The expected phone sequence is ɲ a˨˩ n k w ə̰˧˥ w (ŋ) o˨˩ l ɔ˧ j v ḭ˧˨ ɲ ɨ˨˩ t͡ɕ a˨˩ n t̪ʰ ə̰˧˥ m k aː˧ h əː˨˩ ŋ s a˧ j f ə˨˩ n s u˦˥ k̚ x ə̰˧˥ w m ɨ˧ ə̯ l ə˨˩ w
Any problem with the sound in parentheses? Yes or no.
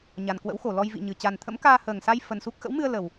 yes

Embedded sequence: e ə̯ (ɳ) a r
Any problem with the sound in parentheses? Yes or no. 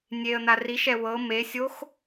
yes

